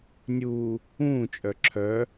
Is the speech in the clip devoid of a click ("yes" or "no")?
no